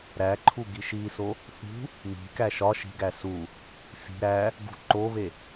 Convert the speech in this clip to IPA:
ɾ æ ǃʰ u ɡ i ʃ i s o | θ ṳ | m i̤ k æ ʃ ɒ ʃ i̤ ɡ æ s u | s i̤ ɾ æ | ɡ ṳ ǃ o β e

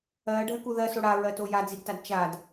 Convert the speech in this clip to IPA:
ɜː ɖʱ ɜ k u ð ɜ s o ɽ a ɹ ɜ t o j a d͡z i d t a d t͡ʃ a d

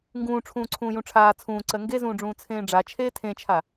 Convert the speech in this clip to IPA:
ŋ ɡ ũː ʈ͡ʂʰ ũː ǀʰ ũː j ũ ʈ͡ʂʰ aː t͡sʰ ũː ǀ ɜ ŋ ɡ e z ũː ɖ͡ʐ ũː t͡sʰ ẽː ɖ͡ʐ a t͡ʃʰ eː tʰ ẽ t͡ʃʰ a

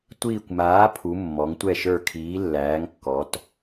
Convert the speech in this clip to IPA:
tʷ iː˧˩ kʷ m aː˩˥ pʰ u˩˧ mː ɔ˩˧ ŋ tʷ ɛ˧˩ ʃ ə˞˧˩ kʰ iː˩˥ lː æː˩˥ ŋ kː ɔ˩˧ t

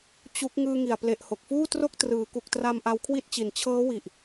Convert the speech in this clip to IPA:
t͡ɕ u˦˥ k̚ ŋ ɯː˧ ŋ i˨˩ a̯ p l e˨˩ ʔ h o˨˩ k̚ f uː˥˩ t r o˥˩ k̚ t r ɯː˩˦ k u˨˩ k̚ t r a˧ m ʔ a˧ w kʰ w i˥˩ t̚ t͡ɕ i˨˩ n t͡ɕʰ ɤː˦˥ w i˨˩ ʔ

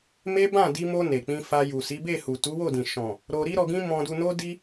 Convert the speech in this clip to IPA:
m e˦ b ã˦˨ d i˧ m o˧ n e˨ k͡p ĩ˧ f a˧ j u˨ s i˨˦ b e˦˨ h u˨ t u˨˦ w o˦˨ d ĩ˨ ʃ ɔ̃˨ | ɾ o˧ ɾ i˦ ɾ ɔ˧ ɡ ĩ˦ m ɔ̃˧ d u˧ n o˦ d i˦

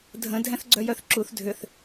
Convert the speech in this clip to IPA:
dʱ ə̃ dʱ ɛ̃ θ ɡ͡ǀ œ j œ θ ǁ u θ dʱ ʏ θ

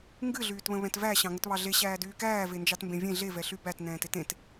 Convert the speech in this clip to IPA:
ŋ ɡ ɨ ɮ yː t β ə̃ β ɛ̃ t v æ ɕ ɑ̃ ŋ ə t β ɑ ɮ e ɕ æː d yː k æː v e n d͡ʒ ɑ t m b ẽ vʲ ẽ ɮ e v ɛ ɬ y b æ t n ɛ̃ː t e t ẽ t

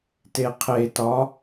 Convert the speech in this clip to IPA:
t e qʰ e t ɒ

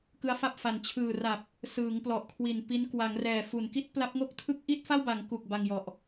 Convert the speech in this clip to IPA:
k ɯ˦˥ a̯ f a˥˩ p̚ f a˧ n t͡ɕʰ ɯː˨˩ r a˨˩ p̚ | s ɯː˩˦ ŋ p l ɔ˨˩ ʔ kʰ w i˨˩ n p i˦˥ n k w a˩˦ ŋ r ɛː˨˩ f u˩˦ n k i˦˥ t̚ p l a˦˥ p̚ ŋ o˥˩ k̚ tʰ ɯ˦˥ k̚ ʔ i˥˩ t̚ f a˥˩ w b a˩˦ ŋ k u˨˩ k̚ b a˧ ŋ j ɔ˨˩ ʔ

